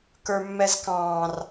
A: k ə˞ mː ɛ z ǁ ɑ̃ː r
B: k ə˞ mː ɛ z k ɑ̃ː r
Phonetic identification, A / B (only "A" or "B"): B